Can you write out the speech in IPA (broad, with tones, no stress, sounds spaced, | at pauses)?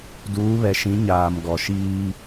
d uː˨˦ β ɛ˨ ʃ ĩ˨˦ ɲ aː˨ m ɡ ɔ˨ ʃ iː˦